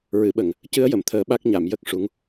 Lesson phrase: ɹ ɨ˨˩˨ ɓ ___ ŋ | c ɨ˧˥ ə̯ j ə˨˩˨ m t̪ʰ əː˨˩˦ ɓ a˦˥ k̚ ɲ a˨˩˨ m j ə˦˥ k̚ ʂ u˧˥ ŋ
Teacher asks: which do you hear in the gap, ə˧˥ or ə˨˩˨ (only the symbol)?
ə˨˩˨